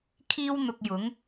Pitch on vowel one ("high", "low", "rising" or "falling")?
high